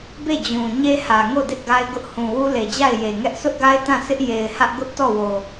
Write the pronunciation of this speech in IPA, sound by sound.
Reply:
be˦˨d͡ʑũ˨ ɲe˦hä˨ŋo˦˨ dɪ˦ʔɡa˦ɪ̯ɡʊ˦ʔ hũ˨wu˦le˨d͡ʑa˦˨ɪ̯ je˨ŋɛ˦ʔ sʰʊ˦ʔɡa˦ɪ̯ tã˦˨sʰɪ˦ʔ je˨ɪ̯hä˦ʔɡʊ˦ʔ tɔ˦˨wo˨

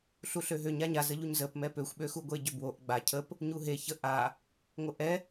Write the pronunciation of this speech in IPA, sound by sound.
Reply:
ɬuɬøɦøɲa ɲazəʎuɲ zəp mɛpøxʷɓøxu ɡʷeɟøbwoʔ ɡ͡ba cʰəp | ɲuɦe çə ʔa | ŋʷəʔɛ

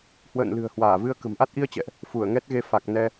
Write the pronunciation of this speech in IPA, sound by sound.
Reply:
hwə̰ː˧˨nlɨ̤˨˩ə̯ hwaː˧˩vɨ˧ə̯ kə̤˨˩mʔa˦˥t̚ʔi˧ə̯t͡ɕɛ̰˧˨ʔ | fu˧˩ə̯ŋɛ˦˥t̚ɣe˧ fa˨˩k̚nɛ˧

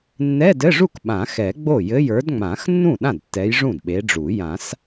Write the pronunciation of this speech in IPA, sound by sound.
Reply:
nːɛ˧˥˧dɘ˧˥˧ʐu˥˩k ɓã˨˩˦xɛ˨˩˦ ɡ͡bo˥˩jɘ˧˥˧j ə˞˨˦dŋ͡mã˨˩˦xnːũ˥˩ ɗã˥˩dtːɛ˨˦j ʐũ˥˩dɓe˨˦ɖ͡ʐu˨˩˦ jã˨˩˦s

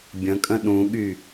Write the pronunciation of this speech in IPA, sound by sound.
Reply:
bʲə̃kʼə̃ ɗũɠy

